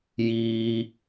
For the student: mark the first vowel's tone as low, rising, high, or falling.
high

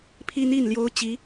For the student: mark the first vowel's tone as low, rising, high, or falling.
high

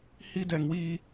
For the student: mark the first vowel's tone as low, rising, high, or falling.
high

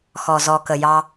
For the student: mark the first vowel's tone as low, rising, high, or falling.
low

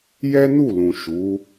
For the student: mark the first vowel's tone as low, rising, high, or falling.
high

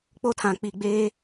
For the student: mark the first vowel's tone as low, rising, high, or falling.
high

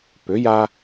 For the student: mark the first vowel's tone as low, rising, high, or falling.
rising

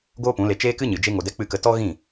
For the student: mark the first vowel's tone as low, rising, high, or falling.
high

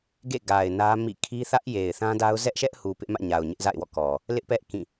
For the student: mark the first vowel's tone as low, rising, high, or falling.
falling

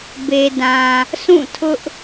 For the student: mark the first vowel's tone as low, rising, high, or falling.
low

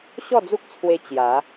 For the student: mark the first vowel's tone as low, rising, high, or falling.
falling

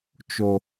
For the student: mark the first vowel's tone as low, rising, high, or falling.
low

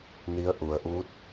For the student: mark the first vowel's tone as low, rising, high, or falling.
rising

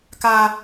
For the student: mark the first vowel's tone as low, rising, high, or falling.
low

